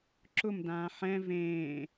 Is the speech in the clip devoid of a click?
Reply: no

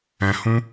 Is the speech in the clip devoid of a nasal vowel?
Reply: no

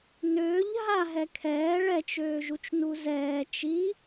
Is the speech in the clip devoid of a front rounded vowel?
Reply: no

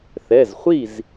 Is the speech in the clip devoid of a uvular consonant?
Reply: no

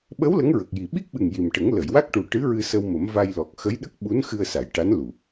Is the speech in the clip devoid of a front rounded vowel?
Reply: yes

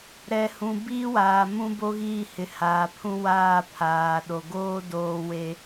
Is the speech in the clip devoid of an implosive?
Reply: no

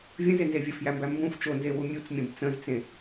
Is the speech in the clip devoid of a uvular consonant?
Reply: yes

